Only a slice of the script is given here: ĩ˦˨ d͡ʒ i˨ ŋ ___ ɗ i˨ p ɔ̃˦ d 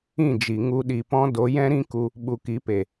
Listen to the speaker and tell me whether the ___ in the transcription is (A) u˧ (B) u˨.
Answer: A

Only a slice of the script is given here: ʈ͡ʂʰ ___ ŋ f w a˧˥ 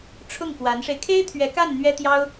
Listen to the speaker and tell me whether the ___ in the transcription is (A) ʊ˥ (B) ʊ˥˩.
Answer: B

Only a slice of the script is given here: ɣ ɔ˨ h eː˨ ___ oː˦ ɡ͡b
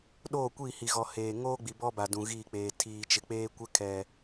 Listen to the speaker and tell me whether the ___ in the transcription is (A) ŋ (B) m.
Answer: A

